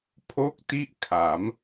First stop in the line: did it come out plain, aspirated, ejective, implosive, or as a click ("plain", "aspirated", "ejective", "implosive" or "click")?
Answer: aspirated